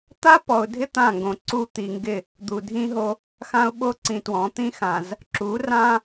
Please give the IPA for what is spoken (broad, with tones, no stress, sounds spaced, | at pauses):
t̪ a˦ p ɔ˨ ʊ̯ dʱ ɪ˦ t̪ ã˦˨ ŋ ɡ õ˨ ǀ u˦ t̪ i˨ ŋ ɡ ɪ˦˨ | d̪ u˨ dʱ ĩ˦ ɦ o˦ | x ã˦ ʊ̯ ɓ o˦ ǀ ĩ˨ t w ɔ̃˨˦ t̪ ĩ˦ x ã˨ z | ǁ u˨˦ r ã˦